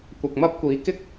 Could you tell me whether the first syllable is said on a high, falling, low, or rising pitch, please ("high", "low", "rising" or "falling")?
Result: low